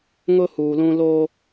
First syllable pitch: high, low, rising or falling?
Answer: high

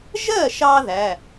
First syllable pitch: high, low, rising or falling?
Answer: falling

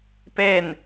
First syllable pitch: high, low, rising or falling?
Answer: falling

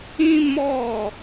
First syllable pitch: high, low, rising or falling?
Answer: high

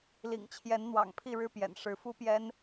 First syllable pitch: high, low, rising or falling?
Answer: low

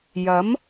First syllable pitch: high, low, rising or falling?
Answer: rising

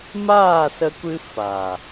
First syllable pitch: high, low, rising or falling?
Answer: falling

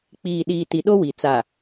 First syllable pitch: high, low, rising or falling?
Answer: low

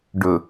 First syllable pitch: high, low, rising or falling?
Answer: low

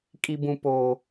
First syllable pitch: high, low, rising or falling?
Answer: low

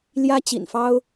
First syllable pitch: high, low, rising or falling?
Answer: high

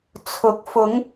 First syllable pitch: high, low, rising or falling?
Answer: rising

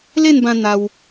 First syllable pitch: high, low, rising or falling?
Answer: falling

